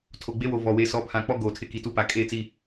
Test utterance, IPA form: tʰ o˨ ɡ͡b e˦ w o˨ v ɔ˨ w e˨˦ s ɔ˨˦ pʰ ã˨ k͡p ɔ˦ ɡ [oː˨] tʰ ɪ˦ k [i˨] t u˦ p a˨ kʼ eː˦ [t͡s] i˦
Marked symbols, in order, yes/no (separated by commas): yes, yes, yes